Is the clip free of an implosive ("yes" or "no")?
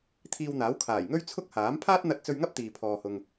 yes